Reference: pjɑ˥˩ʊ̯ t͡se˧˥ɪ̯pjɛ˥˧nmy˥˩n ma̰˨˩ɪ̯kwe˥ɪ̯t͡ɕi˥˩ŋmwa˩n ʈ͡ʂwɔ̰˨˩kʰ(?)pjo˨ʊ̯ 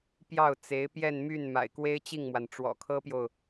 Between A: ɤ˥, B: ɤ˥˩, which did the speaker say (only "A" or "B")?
A